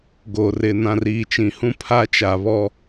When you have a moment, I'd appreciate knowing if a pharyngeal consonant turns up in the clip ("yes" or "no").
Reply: no